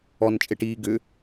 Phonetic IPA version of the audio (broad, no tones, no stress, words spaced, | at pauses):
ɔnt͡ʃʼeʈiː ɡʏ